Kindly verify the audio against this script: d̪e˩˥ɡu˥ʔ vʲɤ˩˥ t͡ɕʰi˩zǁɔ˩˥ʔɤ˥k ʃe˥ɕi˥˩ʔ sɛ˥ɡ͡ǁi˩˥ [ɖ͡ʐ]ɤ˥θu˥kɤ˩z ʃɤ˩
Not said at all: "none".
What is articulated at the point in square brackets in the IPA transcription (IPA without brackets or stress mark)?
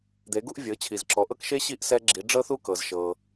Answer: ɖ͡ʐ